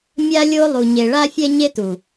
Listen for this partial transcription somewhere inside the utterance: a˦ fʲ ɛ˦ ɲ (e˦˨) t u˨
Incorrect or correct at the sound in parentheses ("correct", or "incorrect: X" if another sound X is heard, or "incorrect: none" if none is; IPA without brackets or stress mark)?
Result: incorrect: e˦